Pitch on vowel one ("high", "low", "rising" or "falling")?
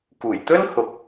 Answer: low